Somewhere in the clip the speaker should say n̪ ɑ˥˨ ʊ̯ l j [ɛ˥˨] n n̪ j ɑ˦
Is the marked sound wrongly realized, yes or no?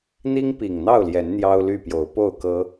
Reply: yes